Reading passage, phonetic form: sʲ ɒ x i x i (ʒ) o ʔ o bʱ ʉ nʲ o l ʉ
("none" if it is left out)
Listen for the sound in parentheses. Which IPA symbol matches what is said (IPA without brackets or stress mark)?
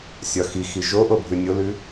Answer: ʒ